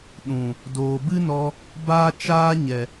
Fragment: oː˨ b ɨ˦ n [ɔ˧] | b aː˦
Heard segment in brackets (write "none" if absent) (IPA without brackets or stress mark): ɔ˧